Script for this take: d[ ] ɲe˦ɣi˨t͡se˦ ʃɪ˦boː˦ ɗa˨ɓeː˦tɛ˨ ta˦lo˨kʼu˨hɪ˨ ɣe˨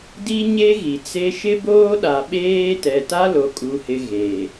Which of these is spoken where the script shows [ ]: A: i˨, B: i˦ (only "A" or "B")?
B